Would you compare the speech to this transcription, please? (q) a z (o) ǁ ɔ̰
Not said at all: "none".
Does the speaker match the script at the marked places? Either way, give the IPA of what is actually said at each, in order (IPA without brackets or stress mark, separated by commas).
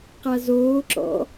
q, oː